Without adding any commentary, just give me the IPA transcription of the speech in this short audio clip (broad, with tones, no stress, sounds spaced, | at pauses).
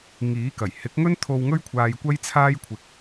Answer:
ŋ iː˨˥ k ɐ˨˩ j h ɪ˨˥ k̚ ŋ ɵ˥ n t̪ʰ o˧ w ŋ ɵ˥ ɥ kʷʰ aː˧ j kʷ ɐ˥ j t͡sʰ aː˥ j kʷʰ ɪ˧ k̚